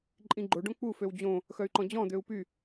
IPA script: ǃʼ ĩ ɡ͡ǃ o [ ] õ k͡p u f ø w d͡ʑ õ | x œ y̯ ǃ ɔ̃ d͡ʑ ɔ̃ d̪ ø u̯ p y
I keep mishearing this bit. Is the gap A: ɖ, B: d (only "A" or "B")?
A